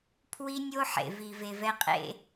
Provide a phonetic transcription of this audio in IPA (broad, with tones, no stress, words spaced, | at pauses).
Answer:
pʰwi˧nʲo˧ ħḛ˨vi˨ve˨vɛ˧ qʼḛ˧